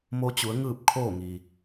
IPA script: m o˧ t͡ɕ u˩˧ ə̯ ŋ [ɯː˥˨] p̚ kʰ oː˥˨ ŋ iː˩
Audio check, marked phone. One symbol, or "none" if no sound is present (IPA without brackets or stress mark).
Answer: ɯː˥˨